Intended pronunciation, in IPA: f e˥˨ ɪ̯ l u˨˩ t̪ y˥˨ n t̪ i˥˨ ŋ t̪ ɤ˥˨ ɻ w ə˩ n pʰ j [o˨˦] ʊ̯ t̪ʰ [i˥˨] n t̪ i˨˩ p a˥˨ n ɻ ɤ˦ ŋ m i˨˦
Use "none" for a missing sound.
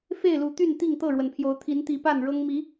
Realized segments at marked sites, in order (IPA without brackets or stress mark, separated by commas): o˨˦, i˨˦